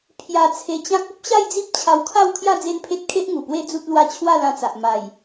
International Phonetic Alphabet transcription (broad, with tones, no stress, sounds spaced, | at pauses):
pʰ j a˧ t͡sʰ e˧ t͡ɕ ã˦ k̚ u˦ p̚ ɕ a˥˧ j d͡z i˦ p̚ t͡ɕʰ a˧ w kʰ a˥˧ w kʰ j a˥˧ d͡z e˦ n pʰ e˦ t̚ kʰ e˦ ʔ ŋ u˨˩ p w e˥˧ d͡z u˦ t̚ l w a˦ t͡ɕʰ w a˥˧ l ã˧ t͡s a˨ ʔ m a˨˩ j